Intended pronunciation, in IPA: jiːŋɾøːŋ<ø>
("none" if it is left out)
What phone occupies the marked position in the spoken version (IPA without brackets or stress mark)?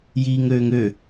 ø